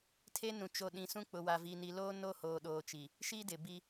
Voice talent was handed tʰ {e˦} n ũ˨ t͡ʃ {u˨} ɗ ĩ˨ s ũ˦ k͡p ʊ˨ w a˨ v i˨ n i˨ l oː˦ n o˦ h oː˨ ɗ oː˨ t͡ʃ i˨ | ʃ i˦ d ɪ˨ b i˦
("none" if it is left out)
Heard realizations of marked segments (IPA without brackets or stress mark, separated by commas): e˦, o˨